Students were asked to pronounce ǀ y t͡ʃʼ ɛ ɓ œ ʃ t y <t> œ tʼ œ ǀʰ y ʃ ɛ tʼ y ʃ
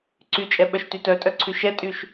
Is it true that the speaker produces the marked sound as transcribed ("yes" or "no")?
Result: yes